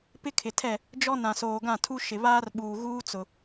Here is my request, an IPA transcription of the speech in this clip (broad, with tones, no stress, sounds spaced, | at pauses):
p ɪ˦ kʰ ɪ˨ tʰ ɛ˦˨ | d͡ʒ ɔ˦ n ã˨ s oː˨ ɡ ã˦˨ tʰ u˦ ʃ ɪ˨ β aː˦ r ɓ uː˨ ɣ uː˦ t͡s ʊ˨